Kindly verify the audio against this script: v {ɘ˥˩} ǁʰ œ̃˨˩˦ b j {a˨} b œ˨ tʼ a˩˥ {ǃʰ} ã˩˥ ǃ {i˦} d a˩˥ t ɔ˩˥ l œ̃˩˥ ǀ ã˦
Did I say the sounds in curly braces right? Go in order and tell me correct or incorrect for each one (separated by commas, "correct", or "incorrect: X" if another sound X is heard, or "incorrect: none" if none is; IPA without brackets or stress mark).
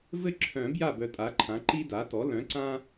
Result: correct, incorrect: a˥˩, correct, correct